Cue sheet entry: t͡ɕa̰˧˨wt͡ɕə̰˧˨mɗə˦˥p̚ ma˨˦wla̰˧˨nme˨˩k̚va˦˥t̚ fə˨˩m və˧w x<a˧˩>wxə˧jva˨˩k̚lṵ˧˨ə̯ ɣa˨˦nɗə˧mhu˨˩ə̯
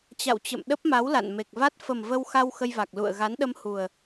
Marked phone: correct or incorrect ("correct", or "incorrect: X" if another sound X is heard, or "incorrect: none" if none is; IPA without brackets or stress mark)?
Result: incorrect: a˧